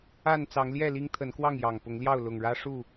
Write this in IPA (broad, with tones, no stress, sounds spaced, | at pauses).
a˥˨ n t͡s ɑ˨˦ ŋ l j ɛ˥˨ l i˦ ŋ t̪ʰ ə˨˦ n k w ɑ˥˨ ŋ j ɑ˨˩ ŋ p ʊ˨˦ ŋ l j ɑ˥˨ ʊ̯ l ʊ˨˩ ŋ ɻ ä˦ ʂ u˥˨